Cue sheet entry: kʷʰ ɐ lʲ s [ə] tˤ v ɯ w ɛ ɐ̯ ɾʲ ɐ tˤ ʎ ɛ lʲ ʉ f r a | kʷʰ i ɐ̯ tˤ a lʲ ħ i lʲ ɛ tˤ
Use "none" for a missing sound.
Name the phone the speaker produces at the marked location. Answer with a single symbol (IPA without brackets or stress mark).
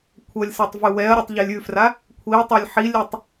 a